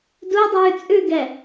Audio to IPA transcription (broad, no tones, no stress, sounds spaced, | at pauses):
d u dˤ ʉː t͡sʼ ʉ ɡ ɛ